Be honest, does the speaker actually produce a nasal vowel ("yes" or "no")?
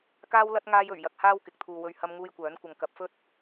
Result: no